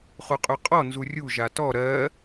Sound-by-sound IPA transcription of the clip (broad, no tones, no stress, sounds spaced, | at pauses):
χ u qʼ y qʼ ɔ n z u rʲ u ʒ a t ɔ ɾ ɜ